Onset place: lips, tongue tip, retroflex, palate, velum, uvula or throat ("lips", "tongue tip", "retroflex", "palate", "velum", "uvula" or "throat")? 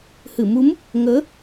throat